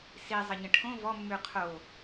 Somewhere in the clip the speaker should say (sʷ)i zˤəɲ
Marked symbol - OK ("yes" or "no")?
no